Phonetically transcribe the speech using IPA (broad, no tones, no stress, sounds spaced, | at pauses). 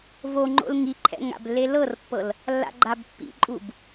v o ŋ͡ǃ o̰ l ŋ i ǃʰ ɛ̰ ŋ a̰ b lː e l ɤ r pː ɤ l | lː a̰ ɡ͡ǃ a b pː ḭ ǃʼ u b